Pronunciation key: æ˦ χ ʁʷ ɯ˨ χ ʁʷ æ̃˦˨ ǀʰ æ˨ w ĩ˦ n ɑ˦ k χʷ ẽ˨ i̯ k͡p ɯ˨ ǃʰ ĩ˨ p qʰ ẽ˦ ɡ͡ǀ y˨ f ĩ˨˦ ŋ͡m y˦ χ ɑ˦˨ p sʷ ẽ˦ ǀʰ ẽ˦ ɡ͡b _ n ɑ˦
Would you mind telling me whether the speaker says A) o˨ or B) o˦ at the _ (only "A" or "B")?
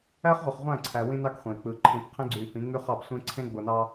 A